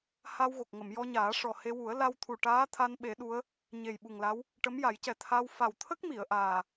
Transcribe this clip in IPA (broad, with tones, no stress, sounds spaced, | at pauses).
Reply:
h a˧ w ɣ o˨˩ k̚ ŋ ə˨˩˨ m j ɔ˧ ɲ aː˨˩˦ ʂ ɔ˨˩ h e˧ w u˨˩˦ ə̯ l a˧ w t̪ʰ u˨˩ ʈ aː˧˥ t̪ʰ a˧ n ɓ e˨˩˦ ɗ u˧˥ ə̯ | ɲ e˨˩ j ɓ u˨˩ ŋ l a˧˥ w | ʈ ə˧˥ m j a˨˩˦ j c ɛ˨˩ t̪ʰ a˧ w f a˨˩ w t̪ʰ ə˦˥ k̚ m i˨˩˨ ə̯ ʔ aː˨˩